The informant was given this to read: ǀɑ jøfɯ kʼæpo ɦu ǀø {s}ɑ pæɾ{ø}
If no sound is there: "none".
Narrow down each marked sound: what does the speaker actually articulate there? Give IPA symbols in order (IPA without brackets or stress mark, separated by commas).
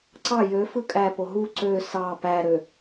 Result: s, ø